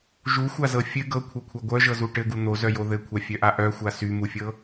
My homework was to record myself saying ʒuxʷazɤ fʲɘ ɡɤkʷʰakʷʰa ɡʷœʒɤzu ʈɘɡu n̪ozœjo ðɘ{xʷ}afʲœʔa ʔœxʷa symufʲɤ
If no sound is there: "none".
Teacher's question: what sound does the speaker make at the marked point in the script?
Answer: kʷʰ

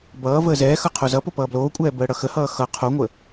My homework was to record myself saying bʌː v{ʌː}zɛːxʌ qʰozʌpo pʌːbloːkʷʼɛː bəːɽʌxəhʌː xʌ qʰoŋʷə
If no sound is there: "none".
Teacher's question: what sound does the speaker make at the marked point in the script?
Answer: əː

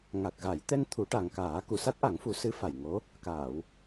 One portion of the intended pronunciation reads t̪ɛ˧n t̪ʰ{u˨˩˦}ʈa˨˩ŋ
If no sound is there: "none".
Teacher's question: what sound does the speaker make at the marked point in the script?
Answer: u˨˩˦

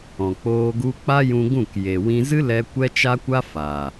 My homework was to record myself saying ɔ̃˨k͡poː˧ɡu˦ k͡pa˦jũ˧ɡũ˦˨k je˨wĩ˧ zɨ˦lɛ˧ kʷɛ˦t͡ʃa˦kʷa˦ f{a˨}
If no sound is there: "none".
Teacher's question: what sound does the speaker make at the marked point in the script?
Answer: a˨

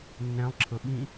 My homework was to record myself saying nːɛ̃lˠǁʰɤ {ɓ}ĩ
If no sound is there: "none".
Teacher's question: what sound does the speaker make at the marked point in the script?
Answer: ɓ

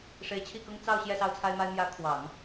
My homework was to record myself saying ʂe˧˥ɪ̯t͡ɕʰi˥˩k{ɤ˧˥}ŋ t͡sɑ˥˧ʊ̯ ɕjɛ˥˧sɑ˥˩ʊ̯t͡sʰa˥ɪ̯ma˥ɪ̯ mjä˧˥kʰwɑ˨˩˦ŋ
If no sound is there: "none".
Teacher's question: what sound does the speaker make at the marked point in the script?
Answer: ɤ˥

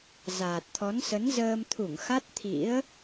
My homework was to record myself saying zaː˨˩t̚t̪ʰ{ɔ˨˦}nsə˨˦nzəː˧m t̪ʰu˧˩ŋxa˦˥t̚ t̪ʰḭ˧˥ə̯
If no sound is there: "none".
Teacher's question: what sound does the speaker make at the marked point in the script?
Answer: ɔ˨˦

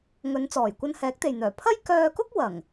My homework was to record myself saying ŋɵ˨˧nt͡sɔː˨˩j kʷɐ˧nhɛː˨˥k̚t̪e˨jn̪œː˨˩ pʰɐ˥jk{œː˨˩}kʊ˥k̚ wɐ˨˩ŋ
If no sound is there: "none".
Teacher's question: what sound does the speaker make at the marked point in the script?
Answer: œː˧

